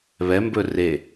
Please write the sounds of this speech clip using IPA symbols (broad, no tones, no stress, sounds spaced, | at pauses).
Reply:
β ɛ m b ɵ r e